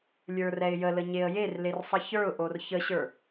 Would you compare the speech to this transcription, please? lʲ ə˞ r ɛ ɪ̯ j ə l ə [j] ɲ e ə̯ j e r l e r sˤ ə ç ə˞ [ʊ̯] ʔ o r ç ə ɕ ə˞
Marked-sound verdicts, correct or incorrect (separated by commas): incorrect, correct